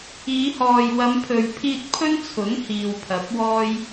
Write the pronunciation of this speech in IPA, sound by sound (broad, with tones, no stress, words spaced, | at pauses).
iː˨˧hɔː˨j wɐ˨˧mpʰɵ˨ɥpʰiː˧t̚ pʰɵ˥nt͡sʰʊ˨˥ŋ hiː˨wpʰɐ˨˥p̚wɔː˥j